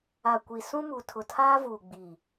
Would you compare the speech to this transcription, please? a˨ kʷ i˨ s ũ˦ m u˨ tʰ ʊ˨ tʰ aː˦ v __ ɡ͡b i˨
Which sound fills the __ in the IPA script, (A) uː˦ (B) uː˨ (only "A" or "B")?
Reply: B